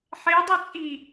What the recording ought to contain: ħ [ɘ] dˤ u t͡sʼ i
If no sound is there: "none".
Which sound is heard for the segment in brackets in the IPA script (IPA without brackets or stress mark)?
e